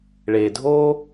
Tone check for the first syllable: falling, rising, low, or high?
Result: low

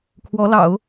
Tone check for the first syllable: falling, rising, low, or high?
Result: rising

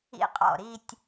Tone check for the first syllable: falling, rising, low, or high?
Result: high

